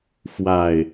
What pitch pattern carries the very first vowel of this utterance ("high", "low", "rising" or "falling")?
low